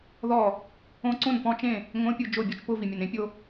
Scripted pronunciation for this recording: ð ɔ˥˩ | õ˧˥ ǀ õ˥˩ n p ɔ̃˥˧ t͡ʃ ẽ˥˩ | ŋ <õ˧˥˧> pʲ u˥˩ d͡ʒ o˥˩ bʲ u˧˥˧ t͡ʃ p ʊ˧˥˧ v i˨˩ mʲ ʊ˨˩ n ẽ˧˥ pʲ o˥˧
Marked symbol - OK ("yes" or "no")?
yes